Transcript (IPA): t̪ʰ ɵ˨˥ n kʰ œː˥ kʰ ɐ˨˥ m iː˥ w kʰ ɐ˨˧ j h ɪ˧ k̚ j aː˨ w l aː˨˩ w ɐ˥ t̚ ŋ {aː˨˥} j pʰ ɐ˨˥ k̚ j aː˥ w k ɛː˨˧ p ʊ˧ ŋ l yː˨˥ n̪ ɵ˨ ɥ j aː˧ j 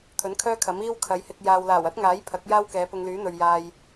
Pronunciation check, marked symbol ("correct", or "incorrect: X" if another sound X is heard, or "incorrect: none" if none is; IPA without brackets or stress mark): correct